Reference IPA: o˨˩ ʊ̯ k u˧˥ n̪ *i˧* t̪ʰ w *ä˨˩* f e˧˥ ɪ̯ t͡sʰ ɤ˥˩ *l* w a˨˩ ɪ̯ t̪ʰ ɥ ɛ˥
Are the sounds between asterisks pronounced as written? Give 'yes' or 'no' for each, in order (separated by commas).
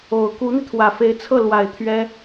yes, yes, yes